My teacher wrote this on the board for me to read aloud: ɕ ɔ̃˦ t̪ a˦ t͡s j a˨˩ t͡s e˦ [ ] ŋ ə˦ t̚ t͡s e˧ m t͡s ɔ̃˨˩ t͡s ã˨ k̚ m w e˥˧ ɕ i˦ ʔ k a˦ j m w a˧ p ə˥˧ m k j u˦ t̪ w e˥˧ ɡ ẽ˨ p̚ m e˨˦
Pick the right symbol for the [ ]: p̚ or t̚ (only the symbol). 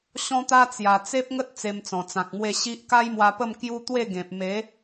p̚